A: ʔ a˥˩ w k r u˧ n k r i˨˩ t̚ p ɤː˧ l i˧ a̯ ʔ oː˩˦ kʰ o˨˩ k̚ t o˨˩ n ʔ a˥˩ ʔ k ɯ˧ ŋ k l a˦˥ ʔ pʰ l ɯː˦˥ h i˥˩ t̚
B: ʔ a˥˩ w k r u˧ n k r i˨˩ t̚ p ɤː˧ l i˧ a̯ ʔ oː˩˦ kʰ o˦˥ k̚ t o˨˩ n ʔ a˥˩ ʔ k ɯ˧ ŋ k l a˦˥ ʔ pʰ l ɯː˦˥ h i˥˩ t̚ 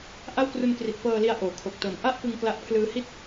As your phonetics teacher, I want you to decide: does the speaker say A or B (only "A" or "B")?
A